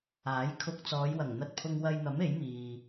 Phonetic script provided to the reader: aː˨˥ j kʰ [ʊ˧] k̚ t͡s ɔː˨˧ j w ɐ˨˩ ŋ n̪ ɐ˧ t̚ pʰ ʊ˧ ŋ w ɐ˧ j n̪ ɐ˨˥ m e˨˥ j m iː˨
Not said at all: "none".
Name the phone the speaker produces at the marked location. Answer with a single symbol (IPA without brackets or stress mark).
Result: ʊ˧